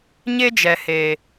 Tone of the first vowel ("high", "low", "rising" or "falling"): high